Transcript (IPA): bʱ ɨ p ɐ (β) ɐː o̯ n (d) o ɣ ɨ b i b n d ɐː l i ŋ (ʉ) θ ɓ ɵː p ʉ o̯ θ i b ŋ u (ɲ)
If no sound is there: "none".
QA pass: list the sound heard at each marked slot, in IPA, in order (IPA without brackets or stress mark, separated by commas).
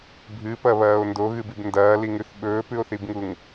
β, d, ʉ, ŋ